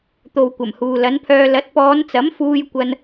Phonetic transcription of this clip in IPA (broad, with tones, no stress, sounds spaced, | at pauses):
t̪ o˨ w kʷ ɐ˨˩ m h uː˨ l ɐ˨˥ n pʰ œː˧ l ɐ˨˥ t̚ p ɔː˨˧ n t͡s ɐ˨˥ m f uː˧ j kʷ ɐ˧ n